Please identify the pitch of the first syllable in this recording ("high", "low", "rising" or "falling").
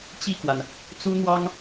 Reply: falling